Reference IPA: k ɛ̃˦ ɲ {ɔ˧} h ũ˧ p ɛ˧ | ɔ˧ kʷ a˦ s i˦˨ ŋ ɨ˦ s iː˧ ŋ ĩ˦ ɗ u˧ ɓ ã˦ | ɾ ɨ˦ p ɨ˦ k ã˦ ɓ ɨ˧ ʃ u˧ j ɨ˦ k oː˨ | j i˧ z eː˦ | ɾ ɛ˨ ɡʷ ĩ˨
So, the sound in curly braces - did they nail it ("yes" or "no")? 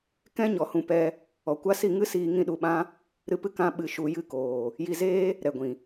yes